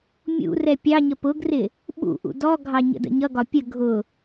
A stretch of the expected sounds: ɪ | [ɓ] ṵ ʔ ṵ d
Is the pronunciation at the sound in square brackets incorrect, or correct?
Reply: correct